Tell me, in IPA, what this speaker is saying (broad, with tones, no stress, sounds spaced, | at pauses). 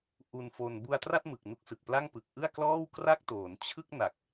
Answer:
ʔ u˧ n f o˧ n b u˧ a̯ t r a˥˩ t̚ m ɯ˨˩ k̚ n u˦˥ k̚ s ɯ˨˩ k̚ p l a˥˩ ŋ p ɯ˨˩ k̚ ʔ ɯ˥˩ a̯ k l ɔː˥˩ w k r a˥˩ k̚ t oː˩˦ n t͡ɕʰ ɯ˥˩ k̚ n a˨˩ k̚